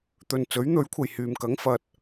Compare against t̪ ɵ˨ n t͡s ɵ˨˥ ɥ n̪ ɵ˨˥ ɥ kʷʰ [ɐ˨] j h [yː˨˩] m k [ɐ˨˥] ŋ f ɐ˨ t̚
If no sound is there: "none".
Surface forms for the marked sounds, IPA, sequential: ɐ˨, yː˨, ɐ˨˥

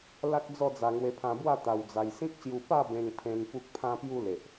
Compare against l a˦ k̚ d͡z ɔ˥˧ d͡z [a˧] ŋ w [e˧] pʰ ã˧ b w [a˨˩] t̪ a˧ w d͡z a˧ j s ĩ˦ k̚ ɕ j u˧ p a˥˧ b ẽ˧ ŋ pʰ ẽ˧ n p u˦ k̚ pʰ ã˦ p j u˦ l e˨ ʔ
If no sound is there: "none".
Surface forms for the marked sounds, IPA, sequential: a˧, e˧, a˥˧

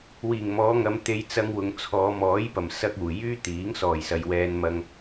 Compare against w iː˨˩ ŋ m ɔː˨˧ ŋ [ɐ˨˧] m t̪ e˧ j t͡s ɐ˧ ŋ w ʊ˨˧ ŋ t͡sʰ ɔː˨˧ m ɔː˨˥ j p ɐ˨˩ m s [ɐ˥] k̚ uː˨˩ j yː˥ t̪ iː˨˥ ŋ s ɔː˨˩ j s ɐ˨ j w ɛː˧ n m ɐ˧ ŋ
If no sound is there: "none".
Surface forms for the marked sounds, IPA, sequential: ɐ˨˧, ɐ˥

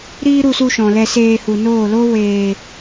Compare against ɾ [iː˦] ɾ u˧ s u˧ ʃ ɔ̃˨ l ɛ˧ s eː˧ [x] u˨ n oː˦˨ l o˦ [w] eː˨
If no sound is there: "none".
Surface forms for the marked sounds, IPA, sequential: iː˦, h, w

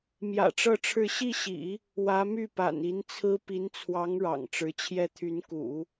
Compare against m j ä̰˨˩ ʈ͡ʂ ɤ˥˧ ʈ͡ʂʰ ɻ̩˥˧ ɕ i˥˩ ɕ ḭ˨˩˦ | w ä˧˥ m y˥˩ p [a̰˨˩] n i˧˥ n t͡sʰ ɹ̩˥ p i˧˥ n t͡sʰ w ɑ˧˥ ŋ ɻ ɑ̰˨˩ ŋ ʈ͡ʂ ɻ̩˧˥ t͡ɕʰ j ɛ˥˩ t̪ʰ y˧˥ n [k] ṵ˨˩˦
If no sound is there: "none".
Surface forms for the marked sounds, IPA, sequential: a̰˨˩, k

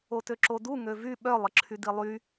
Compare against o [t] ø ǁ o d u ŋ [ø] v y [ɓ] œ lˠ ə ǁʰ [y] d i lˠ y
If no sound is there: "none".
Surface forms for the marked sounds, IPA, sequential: t, ø, ɓ, y

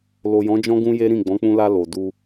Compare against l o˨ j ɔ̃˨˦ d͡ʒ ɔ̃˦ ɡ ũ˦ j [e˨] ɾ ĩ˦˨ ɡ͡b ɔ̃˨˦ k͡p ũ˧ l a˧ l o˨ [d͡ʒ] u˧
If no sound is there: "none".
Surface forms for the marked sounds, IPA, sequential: e˦, d

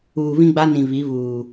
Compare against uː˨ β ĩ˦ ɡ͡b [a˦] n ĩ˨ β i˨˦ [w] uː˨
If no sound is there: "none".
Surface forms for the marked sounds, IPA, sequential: a˦, β

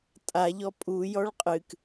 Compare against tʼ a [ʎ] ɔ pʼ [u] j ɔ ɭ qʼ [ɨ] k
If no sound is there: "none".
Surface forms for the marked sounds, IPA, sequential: ʎ, u, ɨ

